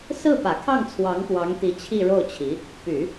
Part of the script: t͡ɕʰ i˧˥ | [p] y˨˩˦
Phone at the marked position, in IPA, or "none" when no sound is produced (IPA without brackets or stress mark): p